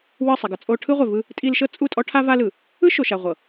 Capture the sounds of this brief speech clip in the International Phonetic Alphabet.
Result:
w ɯ˦˨ sˤ ɛ˨ ɡ ɤ˨ t͡sʼ o˦ ʈʰ ɯ˦ ʁʷ e˨ v ɯ˦ | tʼ i˦ l ʃ ɤ˦ t͡sʼ u˦˨ tʼ ɔ˦ ʈʰ a˦ v a˦ l ɯ˨ | ɯ˦ ʃ o˨ ʃ a˨ ʁʷ ɤ˨

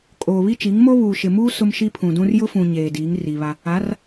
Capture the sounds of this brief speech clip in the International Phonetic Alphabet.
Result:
kʼ oː˨ β i˦ t͡ʃ i˨˦ ŋ m o˦ β uː˨ ʃ ɪ˨ m uː˦ s ʊ˦ m ʃ i˦ pʰ ũ˨ d ũ˦ r j ʊ˦ f ũ˨ ɲ eː˨ d iː˨˦ ŋ r i˨ β a˦ | a˨˦ r

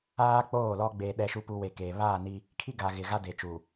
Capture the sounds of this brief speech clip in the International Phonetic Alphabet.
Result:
aː˦ k͡p oː˦˨ l ɔ˦ ɡ͡b eː˨ ɗ ɛ˨ ʃ u˨ p u˨ w e˨ k eː˨ β aː˦˨ n i˦ | kʰ i˦ ɡ a˨ ɣ ɪ˨ ɣ a˦ d e˨ t͡ʃ u˨

